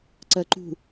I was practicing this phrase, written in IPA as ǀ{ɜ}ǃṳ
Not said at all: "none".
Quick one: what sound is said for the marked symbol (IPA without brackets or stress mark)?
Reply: ɜ